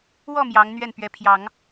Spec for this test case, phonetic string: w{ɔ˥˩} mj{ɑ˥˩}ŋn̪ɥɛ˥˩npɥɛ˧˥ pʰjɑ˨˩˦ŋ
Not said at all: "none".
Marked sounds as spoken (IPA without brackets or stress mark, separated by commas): ɔ˥˩, ɑ˧˥